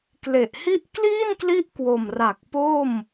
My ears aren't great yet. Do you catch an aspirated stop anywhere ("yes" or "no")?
no